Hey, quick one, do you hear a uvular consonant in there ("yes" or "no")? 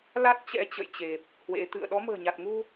no